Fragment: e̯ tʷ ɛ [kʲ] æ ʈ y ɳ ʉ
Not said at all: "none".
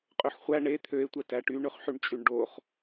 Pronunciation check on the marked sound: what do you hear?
t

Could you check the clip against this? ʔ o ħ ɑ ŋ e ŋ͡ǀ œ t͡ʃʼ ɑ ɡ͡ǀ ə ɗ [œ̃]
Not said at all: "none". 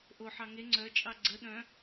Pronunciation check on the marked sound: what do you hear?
œ̃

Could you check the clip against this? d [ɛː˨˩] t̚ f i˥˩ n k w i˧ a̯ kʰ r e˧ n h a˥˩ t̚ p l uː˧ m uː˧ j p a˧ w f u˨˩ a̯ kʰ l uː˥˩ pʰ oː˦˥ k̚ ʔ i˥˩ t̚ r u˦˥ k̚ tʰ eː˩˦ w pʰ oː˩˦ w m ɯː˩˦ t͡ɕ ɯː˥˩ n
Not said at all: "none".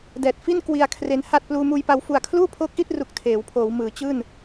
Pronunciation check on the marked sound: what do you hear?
ɛː˨˩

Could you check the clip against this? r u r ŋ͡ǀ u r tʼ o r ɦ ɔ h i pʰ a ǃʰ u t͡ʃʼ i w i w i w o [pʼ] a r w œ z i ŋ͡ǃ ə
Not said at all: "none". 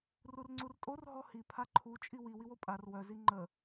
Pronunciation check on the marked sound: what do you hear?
pʼ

